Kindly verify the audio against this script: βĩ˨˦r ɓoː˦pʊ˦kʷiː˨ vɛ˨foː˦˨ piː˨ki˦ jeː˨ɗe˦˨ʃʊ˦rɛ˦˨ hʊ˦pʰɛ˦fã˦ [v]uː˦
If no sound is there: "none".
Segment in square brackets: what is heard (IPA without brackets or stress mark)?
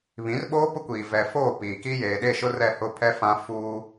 f